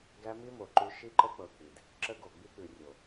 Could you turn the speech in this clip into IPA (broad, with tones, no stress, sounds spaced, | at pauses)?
ɡ æ˦ m i˦ m o˨ ǃ ʉ˦ ʃ i˦ ǃ ə˦ k͡p ɤ˨ k͡p i˨ d | ǁ ə˦ ɡ o˨ ɡ͡b i˦ k͡p ʉ˨ rʲ o˨